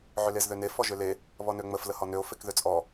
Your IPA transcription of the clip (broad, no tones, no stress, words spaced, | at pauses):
ʕʏlezðøne fɔʒʏle | βɔnøŋ͡məf ləhɔnøo̯ fekðøt͡sʼɔ